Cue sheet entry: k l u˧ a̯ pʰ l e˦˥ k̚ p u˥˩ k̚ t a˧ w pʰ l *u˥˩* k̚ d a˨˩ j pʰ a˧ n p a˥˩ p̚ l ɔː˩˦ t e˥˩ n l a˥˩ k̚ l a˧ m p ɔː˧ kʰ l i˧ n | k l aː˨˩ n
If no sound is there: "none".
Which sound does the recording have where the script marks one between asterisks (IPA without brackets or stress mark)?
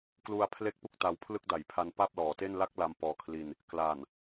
ɯ˥˩